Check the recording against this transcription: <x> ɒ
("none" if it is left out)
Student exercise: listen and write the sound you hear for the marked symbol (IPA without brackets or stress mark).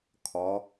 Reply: kʰ